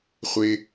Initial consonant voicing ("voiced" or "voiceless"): voiceless